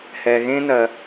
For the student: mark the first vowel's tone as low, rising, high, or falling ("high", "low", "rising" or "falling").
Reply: low